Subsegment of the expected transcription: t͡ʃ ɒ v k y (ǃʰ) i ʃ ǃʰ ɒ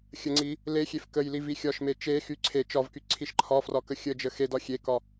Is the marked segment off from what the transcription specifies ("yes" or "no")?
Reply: yes